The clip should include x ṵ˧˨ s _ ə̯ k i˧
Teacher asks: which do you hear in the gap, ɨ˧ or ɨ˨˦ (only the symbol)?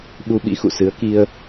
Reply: ɨ˨˦